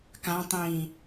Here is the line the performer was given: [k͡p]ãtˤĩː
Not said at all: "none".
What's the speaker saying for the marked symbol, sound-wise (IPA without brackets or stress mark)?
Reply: k